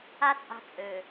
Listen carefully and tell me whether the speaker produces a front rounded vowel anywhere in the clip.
yes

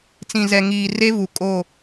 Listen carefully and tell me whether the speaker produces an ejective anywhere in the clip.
yes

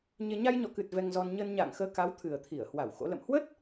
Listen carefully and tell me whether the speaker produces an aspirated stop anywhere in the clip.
yes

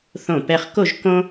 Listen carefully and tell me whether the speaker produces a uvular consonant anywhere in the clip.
yes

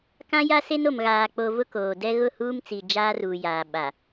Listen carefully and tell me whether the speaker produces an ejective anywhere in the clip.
no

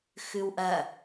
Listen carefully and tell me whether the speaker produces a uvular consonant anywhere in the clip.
no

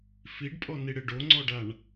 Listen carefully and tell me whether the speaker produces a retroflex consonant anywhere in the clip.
yes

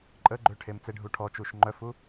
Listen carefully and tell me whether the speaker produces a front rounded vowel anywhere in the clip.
yes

